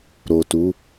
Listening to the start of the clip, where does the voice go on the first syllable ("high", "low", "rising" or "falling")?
low